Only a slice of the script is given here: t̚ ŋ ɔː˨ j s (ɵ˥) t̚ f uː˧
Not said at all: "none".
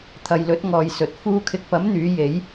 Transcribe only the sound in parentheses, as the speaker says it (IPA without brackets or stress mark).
ɵ˨